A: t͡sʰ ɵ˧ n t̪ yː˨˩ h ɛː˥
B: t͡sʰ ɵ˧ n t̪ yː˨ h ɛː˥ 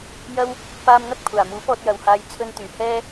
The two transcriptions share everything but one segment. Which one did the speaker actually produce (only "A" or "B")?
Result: A